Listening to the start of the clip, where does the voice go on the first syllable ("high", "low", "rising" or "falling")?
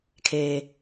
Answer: low